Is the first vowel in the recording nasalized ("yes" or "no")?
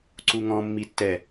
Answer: no